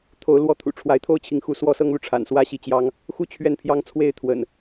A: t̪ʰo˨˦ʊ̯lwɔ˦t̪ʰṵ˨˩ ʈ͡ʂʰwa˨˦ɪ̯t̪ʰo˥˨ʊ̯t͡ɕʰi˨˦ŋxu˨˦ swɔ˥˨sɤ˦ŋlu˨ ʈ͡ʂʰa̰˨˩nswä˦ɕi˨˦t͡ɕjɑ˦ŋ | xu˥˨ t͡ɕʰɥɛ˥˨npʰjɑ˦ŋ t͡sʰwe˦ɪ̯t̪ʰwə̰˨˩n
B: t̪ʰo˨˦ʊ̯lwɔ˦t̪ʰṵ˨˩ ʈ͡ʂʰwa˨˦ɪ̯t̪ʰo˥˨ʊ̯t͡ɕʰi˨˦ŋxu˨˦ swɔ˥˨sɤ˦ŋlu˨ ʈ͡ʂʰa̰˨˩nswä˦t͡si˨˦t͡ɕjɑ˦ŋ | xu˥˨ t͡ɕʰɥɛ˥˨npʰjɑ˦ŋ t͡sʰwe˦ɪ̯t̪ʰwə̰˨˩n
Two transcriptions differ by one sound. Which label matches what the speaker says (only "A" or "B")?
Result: A